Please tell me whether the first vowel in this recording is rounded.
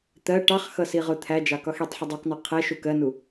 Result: no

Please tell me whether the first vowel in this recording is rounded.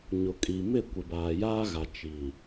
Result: yes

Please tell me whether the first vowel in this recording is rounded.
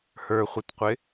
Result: no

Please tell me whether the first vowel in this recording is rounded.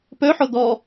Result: yes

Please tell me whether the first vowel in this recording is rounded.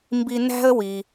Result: no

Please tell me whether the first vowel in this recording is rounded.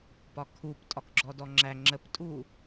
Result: yes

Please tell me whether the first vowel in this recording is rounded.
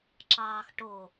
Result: no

